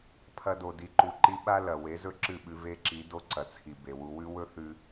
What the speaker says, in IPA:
pʰ ɐ˧ d o˨ d i˨ ǃ u˨ ǃ i˧ ɓ a˦ l ɐ˨ w e˨˦ z ɵ˦ ǁ ɨ˦˨ ɓ ʉ˧ v e˦ ǁ i˨˦ d o˦ ǀ ɐ˨ t͡sʰ i˨ b e˨ w u˧ w ʉ˦ w ɵ˦ θ ʉ˦

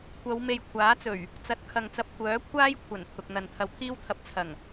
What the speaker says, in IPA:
kʷ ɐ˨˧ w m e˨ j kʷʰ aː˨˥ t͡s ɵ˨˩ ɥ | t͡s ɐ˨˥ t̚ kʰ ɐ˨ ŋ t͡s ɐ˧ p̚ kʷ œː˨˥ kʷʰ aː˥ j kʷʰ ɐ˨˩ n t̪ʰ ʊ˨ k̚ n̪ ɐ˨ n t̪ʰ ɐ˧ w t̪ʰ iː˥ w t̪ʰ ɐ˧ p̚ t͡sʰ ɐ˨˩ ŋ

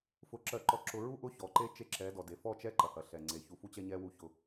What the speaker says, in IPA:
f ʊ˨ ǁ ɜ˨ ǃ ɔ˨ ǁ ʊ˨ ɹ u˦ ʔ ʊ˦˨ ç ɔ˨ ǃ e˦ t͡ʃ e˦ ǁ ɛ˨˦ d ɔ˨ d e˨ f ɔ˦˨ t͡ʃ ɛ˦ ǃ ɐ˨ h ɐ˨ ɬ ɛ˨ ŋ͡ǀ e˨ ç u˨ f u˦ t͡ɕ ɛ˦ ɲ ɛ˦ w u˦˨ ç ʊ˦

